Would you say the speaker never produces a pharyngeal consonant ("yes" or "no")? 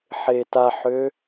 no